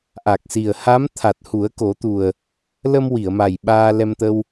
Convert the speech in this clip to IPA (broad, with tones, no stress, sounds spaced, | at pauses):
ʔ a˨˩ k̚ s i˨˩ ə̯ h a˧˥ m t̪ʰ a˨˩ t̚ h u˨˩˦ ə̯ k o˨˩˦ t̪ u˨˩ ə̯ | l ə˧ m w i˨˩˨ ə̯ m a˨˩ j ɓ aː˧ l ɛ˧ m t̪ ə˧ w